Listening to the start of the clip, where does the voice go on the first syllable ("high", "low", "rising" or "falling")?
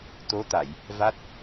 rising